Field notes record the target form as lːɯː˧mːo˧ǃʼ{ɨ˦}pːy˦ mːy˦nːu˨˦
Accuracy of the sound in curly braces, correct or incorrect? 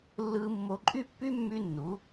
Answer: incorrect: y˦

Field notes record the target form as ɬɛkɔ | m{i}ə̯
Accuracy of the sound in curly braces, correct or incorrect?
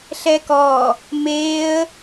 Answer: incorrect: e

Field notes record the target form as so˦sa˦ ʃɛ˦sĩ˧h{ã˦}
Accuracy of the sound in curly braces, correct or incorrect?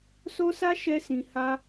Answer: incorrect: a˦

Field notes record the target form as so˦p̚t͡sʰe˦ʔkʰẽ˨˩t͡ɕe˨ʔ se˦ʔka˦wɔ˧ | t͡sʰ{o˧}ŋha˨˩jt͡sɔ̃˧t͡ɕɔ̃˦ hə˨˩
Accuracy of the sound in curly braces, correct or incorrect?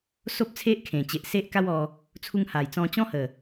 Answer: incorrect: u˧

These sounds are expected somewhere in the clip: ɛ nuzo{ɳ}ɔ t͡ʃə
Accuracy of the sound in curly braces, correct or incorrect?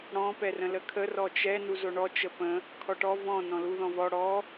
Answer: correct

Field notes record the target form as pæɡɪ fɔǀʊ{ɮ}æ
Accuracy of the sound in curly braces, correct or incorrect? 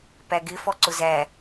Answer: incorrect: z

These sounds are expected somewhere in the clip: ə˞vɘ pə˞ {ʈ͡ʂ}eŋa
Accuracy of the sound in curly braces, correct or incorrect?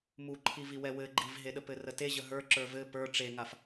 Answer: correct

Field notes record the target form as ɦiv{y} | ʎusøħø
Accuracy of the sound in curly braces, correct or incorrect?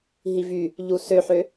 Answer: correct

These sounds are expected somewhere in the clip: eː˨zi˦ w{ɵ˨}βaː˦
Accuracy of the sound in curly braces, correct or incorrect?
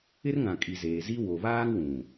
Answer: incorrect: o˨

